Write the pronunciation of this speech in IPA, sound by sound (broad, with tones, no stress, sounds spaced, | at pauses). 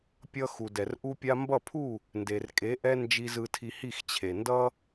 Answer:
pʲ ʌ˧ x u˨ d ɛ˨ r ʔ u˦ pʲ a˧ m b ʌ˦˨ pʰ u˦˨ | n d e˨ r kʼ e˨˦ ʔ ɛ˦ n d͡ʒ i˧ z ɯ˧ tʰ i˧ h i˦˨ x t͡ɕʰ e˨ n d ʌ˦